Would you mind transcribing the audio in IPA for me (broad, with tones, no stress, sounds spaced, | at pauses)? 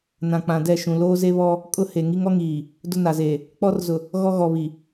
n ã˨ k͡p ã˨ d ɛ˦˨ ʃ ũ˨ l oː˦ z e˦ β ɔ˦ | kʼ ʊ˦ h e˨ ŋ i˦ ŋ ɔ˦ ŋ iː˨ | d ʊ˦ n a˨ z eː˨ | k͡p ɔ˦ r z ʊ˨ | ɣ ɔ˦ ɣ ɔ˨ β i˨